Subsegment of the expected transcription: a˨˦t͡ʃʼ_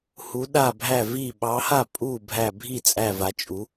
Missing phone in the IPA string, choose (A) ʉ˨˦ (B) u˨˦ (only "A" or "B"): B